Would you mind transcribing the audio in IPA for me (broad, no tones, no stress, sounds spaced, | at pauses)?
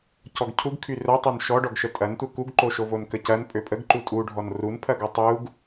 c ɔ ɡ cʰ u ɡ kʰ y r œ tˤ ø n ʃ ɔ ɖ ɔ ɡ ʃ ə tʼ ɐ n tʷ ɐ k u ɡ ǃ o ʃ o v o n k ə c ɐ n pʼ ø pʼ ə ɡ ǃ u tʼ u ɖʱ ɔ n r u n pʰ ɐ ɡ ɔ tˤ u ɡ